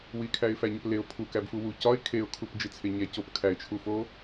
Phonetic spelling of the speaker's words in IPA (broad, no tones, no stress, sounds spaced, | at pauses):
w i kʰ æ ɪ̯ f æ ɲ ɒ p l e ʊ̯ pʰ u k æ b f u w u c ɒ ɪ̯ kʰ e ʊ̯ kʰ u p d͡ʒ i t͡sʰ e ɲ æ c o p kʰ æ ɪ̯ t͡ʃʰ u f o